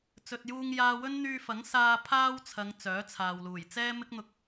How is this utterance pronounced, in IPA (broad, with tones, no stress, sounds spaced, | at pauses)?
t͡s ɵ˨ t̚ j uː˧ ŋ j aː˧ w ɵ˥ n n̪ yː˧ f ɐ˨˥ ŋ s aː˧ pʰ aː˥ w t͡sʰ ɐ˨˧ ŋ t͡s œː˨˥ t͡sʰ aː˨ w l uː˨˩ j t͡s ɛː˥ m ɪ˥ k̚ n̪ ʊ˧ k̚